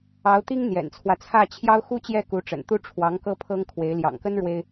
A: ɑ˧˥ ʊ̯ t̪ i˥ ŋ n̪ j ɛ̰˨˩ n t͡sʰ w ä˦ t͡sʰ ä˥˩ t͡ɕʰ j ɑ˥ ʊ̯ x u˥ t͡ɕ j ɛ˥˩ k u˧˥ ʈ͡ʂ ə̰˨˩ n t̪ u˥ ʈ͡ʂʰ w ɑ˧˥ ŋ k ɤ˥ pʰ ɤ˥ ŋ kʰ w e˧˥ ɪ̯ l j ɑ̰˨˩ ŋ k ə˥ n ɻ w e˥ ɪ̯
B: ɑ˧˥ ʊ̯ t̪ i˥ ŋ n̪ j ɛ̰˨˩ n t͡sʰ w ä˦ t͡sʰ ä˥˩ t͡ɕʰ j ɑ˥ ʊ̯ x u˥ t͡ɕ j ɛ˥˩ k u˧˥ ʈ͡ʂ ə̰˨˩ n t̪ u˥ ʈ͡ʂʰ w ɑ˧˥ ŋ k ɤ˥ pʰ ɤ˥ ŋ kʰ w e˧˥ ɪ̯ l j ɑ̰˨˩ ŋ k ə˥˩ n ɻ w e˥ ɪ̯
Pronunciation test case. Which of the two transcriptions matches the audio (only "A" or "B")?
A